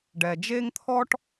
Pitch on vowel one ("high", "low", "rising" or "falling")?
low